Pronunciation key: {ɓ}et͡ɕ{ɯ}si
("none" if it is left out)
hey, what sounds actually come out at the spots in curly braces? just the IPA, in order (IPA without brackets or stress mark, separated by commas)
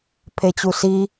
pʰ, u